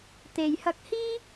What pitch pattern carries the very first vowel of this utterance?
low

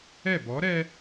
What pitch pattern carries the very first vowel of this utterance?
falling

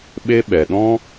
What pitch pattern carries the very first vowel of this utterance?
high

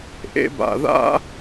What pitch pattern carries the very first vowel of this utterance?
high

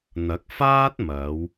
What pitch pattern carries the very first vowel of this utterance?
rising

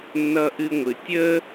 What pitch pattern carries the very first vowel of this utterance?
high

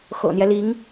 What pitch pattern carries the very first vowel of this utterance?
low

